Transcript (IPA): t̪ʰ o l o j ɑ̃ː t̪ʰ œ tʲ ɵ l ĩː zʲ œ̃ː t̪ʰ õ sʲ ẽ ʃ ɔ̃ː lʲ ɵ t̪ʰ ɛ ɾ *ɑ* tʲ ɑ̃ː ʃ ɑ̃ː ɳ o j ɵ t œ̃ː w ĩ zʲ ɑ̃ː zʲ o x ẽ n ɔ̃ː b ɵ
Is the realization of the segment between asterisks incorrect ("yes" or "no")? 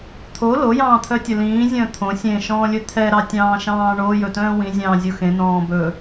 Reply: no